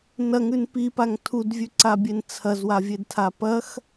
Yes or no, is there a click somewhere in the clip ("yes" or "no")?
yes